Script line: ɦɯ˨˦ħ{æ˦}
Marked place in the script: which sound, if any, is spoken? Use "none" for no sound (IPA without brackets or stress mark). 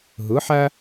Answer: æ˦